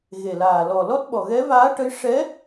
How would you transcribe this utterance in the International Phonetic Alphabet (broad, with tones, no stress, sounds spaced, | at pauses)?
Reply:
ɣ e˨˩ l aː˨˩ l ɔ˨˩ l ɔ˦˥ t̚ ɓ ɔ˨˩ ɣ ɛ˧˥ v aː˧˥ ʈ ə˧˥ j ʂ ɛ˧˥